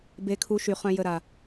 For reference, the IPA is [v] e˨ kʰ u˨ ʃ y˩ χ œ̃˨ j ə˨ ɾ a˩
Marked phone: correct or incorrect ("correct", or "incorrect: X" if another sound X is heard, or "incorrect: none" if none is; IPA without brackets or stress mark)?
incorrect: b